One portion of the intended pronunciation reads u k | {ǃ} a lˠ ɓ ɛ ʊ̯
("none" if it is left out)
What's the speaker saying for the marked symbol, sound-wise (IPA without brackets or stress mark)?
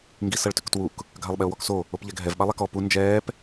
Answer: ɡʱ